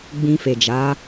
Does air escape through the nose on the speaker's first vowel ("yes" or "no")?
yes